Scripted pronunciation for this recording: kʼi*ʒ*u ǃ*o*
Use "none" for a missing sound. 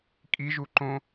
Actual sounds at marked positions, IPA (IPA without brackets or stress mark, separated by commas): ʒ, õ